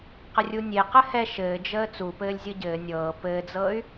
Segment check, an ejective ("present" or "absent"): absent